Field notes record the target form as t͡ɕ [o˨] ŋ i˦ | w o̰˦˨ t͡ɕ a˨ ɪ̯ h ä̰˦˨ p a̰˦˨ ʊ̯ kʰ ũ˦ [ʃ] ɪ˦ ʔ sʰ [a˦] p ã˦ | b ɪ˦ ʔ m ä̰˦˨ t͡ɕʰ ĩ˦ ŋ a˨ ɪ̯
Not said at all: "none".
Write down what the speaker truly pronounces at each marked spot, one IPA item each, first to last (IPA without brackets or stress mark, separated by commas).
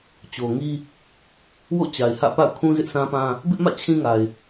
o˨, z, ã˦